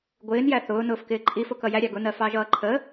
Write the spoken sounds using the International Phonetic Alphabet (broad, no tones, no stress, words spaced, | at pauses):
ɡʷɪːnjæ θʊː nʊːfkɪːǃʼifʊ kʌjæɾʲɑ ɡʊnɜ fɑʒʌːǃʰə